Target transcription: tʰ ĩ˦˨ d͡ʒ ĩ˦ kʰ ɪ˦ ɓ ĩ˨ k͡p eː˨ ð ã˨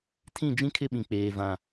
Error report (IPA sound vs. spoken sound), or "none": ð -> v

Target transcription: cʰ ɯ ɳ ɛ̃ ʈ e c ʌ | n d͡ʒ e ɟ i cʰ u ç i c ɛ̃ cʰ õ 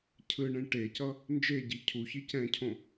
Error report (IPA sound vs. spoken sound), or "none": none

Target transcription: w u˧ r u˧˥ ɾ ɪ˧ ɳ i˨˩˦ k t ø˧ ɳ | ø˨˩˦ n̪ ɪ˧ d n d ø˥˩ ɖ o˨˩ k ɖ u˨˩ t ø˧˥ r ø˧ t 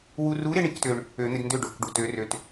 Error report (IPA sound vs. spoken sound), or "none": none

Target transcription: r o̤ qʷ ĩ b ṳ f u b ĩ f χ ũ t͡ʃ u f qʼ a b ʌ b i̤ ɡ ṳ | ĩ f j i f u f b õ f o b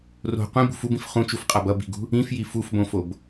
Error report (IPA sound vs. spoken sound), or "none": none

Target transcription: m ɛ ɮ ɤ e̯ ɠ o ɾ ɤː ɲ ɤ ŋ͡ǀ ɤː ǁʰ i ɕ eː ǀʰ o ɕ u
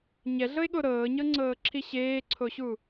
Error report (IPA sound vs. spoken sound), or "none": m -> ɲ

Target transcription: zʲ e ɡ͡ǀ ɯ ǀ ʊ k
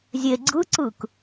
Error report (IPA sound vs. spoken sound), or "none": ʊ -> ɯ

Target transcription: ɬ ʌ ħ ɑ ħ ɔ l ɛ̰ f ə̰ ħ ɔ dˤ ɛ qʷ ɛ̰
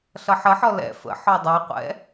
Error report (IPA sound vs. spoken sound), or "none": ɑ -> ə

